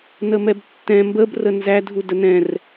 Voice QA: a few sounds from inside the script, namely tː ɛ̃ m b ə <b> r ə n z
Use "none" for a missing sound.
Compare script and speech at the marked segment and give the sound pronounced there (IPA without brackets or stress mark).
b